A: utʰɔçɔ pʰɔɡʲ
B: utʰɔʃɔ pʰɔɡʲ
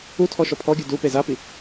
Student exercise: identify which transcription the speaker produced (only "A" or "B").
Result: B